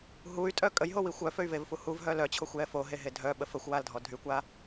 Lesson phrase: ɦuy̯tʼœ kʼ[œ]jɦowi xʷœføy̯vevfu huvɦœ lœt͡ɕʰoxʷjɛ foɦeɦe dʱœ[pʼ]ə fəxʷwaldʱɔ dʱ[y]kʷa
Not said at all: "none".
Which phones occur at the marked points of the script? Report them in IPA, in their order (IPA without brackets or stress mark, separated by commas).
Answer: ə, ɓ, y